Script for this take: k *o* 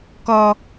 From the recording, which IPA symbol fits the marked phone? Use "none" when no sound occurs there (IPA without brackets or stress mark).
ɔ